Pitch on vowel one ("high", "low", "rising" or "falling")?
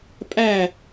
falling